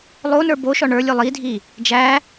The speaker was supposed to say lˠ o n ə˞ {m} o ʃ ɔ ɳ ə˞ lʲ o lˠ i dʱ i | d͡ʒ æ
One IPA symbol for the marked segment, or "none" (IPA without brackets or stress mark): b